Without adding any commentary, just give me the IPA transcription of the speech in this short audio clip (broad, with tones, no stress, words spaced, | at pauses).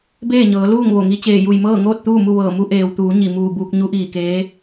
beː˥˨ɲɤː˩˧ luː˥˨ŋʋo˧˩ŋi˧˥ t͡ɕeː˧˩ju˧˩jmɤː˥˨ŋoː˥˨t̚ t̪uː˥˨mu˥˨ ʋɤː˧˩mu˧˥ ʔeː˩wt̪uː˩˧ ɲi˧˩muː˧˩buː˧k̚ ɲu˧˥ʔiː˧˩keː˧˥